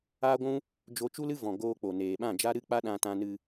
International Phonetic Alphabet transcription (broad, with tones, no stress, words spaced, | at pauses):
aː˦ɡʷũ˦ | d͡ʒo˦ t͡ʃu˦lɨ˦vɔ̃˨ ɡoː˧k͡po˨neː˨ ɓã˦˨d͡ʒa˦ ɾɨ˦k͡pa˦ ɗã˧tã˧nɨ˧